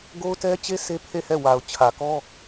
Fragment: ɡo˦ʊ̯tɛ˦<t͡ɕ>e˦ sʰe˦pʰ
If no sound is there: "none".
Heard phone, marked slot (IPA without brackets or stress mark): t͡ɕ